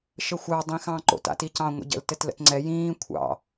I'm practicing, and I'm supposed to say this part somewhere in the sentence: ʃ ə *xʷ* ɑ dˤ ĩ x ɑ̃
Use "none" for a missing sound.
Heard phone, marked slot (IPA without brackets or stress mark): xʷ